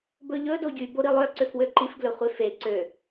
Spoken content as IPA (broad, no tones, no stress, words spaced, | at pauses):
bɵʎɵ doɟyboɾi lˠœǀøfwø ǃifɡlɵ χʷefe ǀø